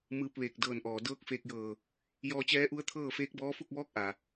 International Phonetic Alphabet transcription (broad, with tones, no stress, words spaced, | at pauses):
mɯː˧p̚ʋeː˧˩k̚ dɤː˧˩nʔɔː˩ dɤː˧˥k̚feː˧k̚jɤː˧˩ | jɔː˧t͡ɕɛː˧˥ʔu˧˥ə̯t̪ʰɤː˥˨ feː˧˥k̚bɔː˧˥ fu˥˨k̚ʋɔː˧˥k̚ ʔa˩